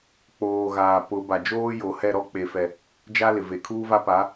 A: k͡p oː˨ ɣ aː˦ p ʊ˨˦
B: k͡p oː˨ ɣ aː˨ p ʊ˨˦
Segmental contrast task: B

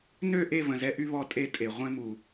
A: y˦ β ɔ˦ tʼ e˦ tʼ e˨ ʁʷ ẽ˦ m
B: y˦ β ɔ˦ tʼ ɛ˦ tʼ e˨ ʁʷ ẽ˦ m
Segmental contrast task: A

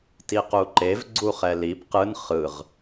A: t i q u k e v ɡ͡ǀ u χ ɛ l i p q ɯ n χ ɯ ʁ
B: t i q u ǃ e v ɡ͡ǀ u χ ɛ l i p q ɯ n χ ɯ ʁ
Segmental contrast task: B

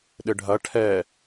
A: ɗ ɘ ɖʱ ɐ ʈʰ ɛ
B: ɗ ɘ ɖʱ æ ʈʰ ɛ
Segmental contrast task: A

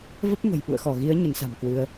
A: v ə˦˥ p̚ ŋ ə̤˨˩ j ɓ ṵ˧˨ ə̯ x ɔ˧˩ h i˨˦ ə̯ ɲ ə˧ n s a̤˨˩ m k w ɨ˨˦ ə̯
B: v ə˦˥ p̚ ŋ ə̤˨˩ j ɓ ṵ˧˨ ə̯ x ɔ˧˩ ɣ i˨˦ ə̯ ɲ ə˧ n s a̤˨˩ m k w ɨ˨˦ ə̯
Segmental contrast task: B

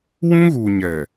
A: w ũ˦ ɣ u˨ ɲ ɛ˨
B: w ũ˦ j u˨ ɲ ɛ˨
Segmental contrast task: A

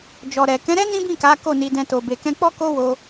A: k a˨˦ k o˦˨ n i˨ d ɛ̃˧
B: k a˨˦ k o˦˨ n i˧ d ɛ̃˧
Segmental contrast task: B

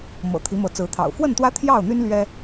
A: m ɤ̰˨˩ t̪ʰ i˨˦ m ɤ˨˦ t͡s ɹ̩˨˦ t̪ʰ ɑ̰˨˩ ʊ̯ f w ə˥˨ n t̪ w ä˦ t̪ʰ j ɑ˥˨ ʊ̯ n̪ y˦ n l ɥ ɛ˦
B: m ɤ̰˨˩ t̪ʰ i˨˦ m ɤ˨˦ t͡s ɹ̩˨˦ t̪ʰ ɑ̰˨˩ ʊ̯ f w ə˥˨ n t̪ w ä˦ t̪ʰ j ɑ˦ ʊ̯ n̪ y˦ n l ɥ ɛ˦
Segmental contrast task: A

